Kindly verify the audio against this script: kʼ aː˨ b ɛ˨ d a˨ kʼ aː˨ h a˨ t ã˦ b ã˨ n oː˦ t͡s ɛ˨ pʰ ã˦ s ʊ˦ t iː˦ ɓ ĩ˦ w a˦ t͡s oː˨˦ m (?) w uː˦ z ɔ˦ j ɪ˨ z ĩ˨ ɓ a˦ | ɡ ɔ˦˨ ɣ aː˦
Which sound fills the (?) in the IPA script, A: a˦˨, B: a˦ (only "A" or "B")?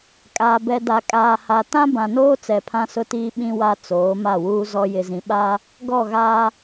A